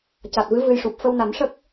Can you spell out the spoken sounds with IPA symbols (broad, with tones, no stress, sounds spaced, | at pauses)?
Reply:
c a˨˩ t̚ v ɨ˧˥ v ɨ˧ j ʂ u˨˩ p̚ f ə˧ w n a˨˩˦ m ʂ ə˦˥ k̚